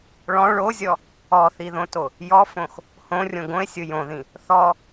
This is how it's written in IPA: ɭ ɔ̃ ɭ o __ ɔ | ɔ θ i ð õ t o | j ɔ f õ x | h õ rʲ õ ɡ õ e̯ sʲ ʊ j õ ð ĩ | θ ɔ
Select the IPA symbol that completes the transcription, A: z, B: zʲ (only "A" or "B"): B